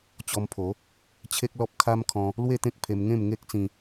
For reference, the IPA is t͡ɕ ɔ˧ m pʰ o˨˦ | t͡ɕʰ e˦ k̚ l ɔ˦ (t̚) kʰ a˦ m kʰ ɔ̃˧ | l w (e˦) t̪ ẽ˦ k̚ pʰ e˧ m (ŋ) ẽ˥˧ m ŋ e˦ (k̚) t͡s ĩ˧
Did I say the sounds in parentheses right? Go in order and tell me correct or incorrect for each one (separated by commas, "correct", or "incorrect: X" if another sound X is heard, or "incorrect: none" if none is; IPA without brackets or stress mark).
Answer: incorrect: p̚, incorrect: e˥˧, correct, correct